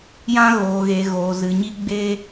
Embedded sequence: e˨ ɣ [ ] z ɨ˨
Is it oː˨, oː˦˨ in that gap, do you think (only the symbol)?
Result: oː˨